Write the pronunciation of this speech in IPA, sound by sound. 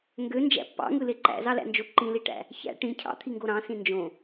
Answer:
ŋ ɡ ø n d͡ʒ æ̰ pː ɑ̰ ŋ ɯ l e ǃ æ̰ z ɑ l æ̰ n d͡ʒ o ǃ ĩ l i ʈ æ̰ | ç æ̰ ʈ ĩ cʰ ɑ̰ t̪ʰ i ŋ ɡ o ɾ ɑ̃ s ĩ n d͡ʒ õ

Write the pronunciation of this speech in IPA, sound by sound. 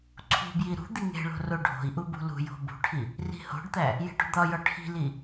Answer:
ǀʰ ṳ b j i ɾ ṳ d̪ i ŋ e̤ ɭ o̤ r o ɖʱ o̤ i̯ ʔ u b ṳ l ṳ j o̤ b ṳ ʈʰ i | r i̤ h o̤ ɖ t̪ æ | j e̤ ʈ ṳ d̪ ɒ j ɒ ʈʰ i̤ l i

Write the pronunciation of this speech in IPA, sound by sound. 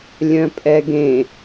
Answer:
lʲ œ̃ pʼ ɛ ɡ ẽ

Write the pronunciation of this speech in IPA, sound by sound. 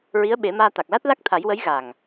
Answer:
ɹ i˧˥ ə̯ ɓ e˨˩˦ m aː˧ t̪ a˨˩ k̚ l a˦˥ t̚ l a˦˥ k̚ t̪ʰ a˨˩˦ j w ə˧˥ j ɣ a˨˩ ŋ

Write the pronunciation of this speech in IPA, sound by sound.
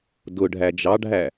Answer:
d ʊ ɖʱ æ d͡ʒ ɑ ɖʱ æ

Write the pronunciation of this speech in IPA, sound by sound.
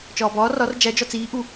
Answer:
t͡ʃ ɒː b ɒː r ɒ r d͡ʒ æ d͡ʒ ɒ t͡s iː ʔ u

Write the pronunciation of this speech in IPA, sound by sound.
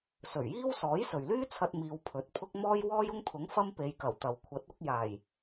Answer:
s ɵ˨˩ ɥ j iː˥ w s ɔː˨˥ j s ɵ˨ ɥ l yː˥ t͡sʰ ɐ˧ t̚ m iː˧ w pʰ ɵ˨˥ t̚ pʰ ʊ˥ k̚ m ɔː˥ j w ɔː˥ j ʊ˥ ŋ t̪ʰ ʊ˨˥ ŋ f ɐ˥ m p e˨˧ j k ɐ˨˩ w t̪ ɐ˨ w kʷʰ ɐ˨˥ t̚ ʊ˨˥ k̚ j aː˨˩ j

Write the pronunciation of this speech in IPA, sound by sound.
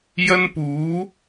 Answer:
j ɐ˧ n p uː˨˧

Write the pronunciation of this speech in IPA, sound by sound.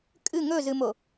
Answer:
kʼ ɨ ŋ ɵ z ɨ m o

